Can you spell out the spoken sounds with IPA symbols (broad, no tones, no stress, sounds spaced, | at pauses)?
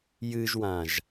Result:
j ɨ ʒ w ã ʒ